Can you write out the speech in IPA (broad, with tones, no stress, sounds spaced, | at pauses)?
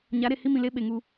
ɲ a˨˦ ɾ e˨ h i˦ m ĩ˨ l e˦ ɓ e˨ ŋ u˦